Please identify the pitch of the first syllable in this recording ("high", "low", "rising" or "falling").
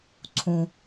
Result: low